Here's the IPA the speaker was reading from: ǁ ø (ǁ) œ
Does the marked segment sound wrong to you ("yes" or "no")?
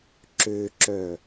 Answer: no